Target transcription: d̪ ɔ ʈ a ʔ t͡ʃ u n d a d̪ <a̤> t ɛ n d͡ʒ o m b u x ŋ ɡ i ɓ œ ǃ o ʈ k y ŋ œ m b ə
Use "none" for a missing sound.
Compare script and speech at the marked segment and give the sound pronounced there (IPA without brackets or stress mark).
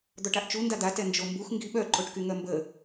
a